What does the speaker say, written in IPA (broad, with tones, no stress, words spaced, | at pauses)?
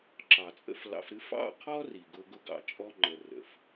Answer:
ǁɑ˨t͡sʼə̰˦flɑ̰˧fɾɨ˦ fɑ̰˦˨qʰɔ˦ ri˨ɡʊ˧ ɡʊ˧ɡɑ̰˧ t͡ʃʼɔ˧ ŋ͡ǃə˨rə̰˨f